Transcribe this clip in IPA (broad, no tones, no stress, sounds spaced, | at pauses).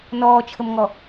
n ɔː t͡ʃʰ ə m ŋ ɔ